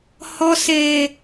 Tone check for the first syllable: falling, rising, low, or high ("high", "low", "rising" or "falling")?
low